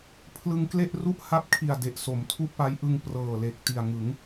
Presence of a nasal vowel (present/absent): absent